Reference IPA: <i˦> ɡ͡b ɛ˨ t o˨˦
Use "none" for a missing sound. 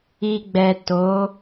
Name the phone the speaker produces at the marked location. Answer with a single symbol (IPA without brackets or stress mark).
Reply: i˨